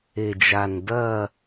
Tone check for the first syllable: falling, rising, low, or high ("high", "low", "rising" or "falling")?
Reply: low